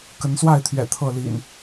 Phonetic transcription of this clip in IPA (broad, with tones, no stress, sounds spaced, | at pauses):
k ə˨˦ n s w a˥˨ ɪ̯ t̪ʰ ɥ ɛ̰˨˩ t̪ʰ ɤ˥˨ l ḭ˨˩ n